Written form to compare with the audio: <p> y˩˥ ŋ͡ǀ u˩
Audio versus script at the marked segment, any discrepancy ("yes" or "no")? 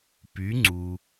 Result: no